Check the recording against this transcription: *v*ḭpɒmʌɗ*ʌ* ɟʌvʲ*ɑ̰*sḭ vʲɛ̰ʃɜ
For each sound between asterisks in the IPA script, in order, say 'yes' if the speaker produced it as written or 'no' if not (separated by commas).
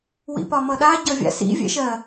no, no, no